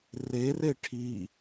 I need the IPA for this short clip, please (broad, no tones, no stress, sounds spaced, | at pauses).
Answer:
r e r e ʈʰ i